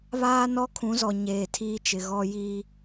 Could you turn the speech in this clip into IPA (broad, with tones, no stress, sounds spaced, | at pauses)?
β aː˦ n ɔ˦ kʰ ũ˨˦ z ɔ˨ ɲ eː˨ tʰ iː˦ t͡ʃ ɪ˨ ɣ ɔ˦ j i˦